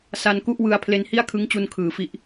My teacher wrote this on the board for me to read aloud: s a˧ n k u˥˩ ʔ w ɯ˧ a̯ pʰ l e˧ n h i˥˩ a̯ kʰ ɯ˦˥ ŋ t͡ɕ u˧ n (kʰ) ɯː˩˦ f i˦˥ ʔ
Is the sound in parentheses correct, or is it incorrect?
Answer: correct